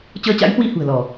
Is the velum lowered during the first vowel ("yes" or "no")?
no